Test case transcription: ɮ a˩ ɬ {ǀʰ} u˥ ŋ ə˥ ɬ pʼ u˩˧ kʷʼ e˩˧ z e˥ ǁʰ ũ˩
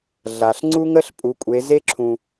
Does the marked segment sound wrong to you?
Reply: yes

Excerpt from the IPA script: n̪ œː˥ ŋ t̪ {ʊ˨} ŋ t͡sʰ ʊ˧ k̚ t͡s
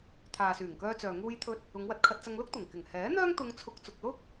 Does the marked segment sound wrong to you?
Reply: yes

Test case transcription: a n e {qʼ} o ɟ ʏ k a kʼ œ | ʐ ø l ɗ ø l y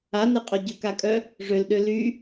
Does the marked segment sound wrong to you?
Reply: no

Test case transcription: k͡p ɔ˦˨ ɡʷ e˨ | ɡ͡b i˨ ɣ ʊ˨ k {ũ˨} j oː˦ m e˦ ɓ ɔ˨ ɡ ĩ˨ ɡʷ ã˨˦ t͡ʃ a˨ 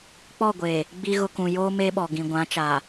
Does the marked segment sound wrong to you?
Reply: no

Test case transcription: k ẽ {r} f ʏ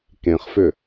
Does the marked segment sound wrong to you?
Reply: yes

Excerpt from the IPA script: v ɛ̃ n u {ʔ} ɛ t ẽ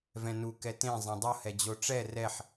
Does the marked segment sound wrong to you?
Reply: yes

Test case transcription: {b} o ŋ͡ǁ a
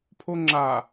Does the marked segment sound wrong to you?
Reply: yes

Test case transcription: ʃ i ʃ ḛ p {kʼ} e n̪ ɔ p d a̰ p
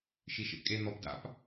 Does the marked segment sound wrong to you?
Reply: no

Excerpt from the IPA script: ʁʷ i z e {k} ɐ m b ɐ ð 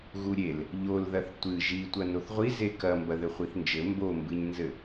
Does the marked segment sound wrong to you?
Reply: no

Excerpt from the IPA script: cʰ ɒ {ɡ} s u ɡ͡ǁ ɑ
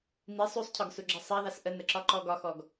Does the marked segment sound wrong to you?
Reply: no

